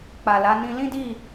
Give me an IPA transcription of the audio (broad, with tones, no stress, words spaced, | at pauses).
k͡pa˨la˨˦ nĩ˧lĩ˦di˦˨